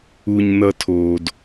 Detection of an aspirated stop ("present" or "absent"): present